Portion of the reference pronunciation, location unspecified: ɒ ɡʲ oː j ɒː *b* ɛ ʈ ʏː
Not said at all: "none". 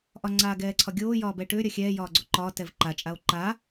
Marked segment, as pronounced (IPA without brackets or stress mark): b